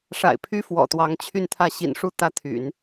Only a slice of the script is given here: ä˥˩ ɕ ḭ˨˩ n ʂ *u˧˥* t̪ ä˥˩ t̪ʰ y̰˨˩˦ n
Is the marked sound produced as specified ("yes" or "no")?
no